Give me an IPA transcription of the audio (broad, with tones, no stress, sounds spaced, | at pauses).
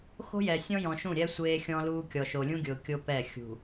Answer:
x o̤˦ j ɛ˨ sʲ ɔ̃˦ j ɔ̃˨ ʃ ũ˦˨ ɾʲ ɛ˦ sʷ eː˦ xʲ ɔ̃˦ l uː˦ kʲ ɔ˨ ʃ o˨ lʲ ũ˦ ɡʲ ʊː˨ kʲ o˦ p ɛ˦˨ xʲ ṳ˨